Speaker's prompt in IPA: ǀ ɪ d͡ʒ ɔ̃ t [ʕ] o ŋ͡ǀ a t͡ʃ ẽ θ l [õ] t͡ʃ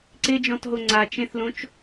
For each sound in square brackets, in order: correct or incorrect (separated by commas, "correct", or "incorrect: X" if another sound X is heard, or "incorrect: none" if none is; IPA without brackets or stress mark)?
incorrect: ɦ, correct